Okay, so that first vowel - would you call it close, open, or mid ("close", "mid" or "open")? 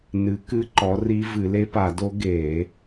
close